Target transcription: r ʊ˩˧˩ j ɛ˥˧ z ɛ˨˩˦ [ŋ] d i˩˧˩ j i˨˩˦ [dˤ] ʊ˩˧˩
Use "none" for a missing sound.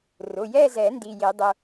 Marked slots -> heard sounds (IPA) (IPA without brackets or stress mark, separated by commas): n, dˤ